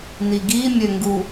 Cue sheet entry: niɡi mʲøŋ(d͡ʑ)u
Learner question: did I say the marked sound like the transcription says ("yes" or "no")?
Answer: no